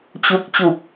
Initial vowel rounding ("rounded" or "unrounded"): rounded